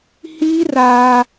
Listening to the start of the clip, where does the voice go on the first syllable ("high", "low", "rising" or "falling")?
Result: high